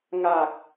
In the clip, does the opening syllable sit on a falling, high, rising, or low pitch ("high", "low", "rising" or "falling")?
low